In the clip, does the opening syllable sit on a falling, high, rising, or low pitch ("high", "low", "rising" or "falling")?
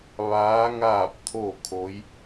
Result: rising